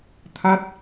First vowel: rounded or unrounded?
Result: unrounded